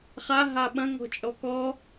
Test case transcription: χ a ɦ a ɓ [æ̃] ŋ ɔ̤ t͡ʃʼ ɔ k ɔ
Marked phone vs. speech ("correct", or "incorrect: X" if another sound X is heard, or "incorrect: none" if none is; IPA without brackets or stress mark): incorrect: ɐ̃